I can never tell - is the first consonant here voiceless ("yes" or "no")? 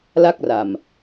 no